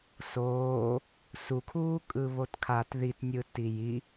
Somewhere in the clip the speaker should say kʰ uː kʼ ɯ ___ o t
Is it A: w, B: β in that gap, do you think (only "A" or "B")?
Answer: B